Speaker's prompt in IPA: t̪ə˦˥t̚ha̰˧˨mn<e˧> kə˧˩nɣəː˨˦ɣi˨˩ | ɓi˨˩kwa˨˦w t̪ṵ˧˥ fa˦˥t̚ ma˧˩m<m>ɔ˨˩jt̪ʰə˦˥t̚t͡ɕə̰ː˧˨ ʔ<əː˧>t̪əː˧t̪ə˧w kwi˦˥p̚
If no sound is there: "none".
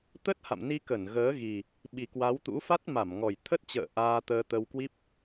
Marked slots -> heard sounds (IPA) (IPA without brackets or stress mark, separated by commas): i˧, ŋ, aː˧